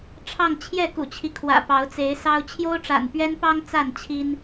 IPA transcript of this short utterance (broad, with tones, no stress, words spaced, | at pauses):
ʈ͡ʂʰɑ˥˨ŋ t͡ɕʰjɛ˥˨kṵ˨˩t͡ɕʰi˦ kʰwä̰˨˩pɑ˨˦ʊ̯t͡se˨˦ɪ̯sɑ˦ʊ̯ t͡ɕʰjo˦ʊ̯ʈ͡ʂa̰˨˩npɥɛ˦npɑ˦ŋ t͡sa˥˨nt͡ɕʰi˦n